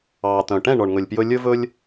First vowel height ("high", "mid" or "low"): low